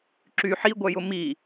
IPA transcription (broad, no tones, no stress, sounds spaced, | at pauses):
ǁ y ħ i ɡʷ œ j ʊ m i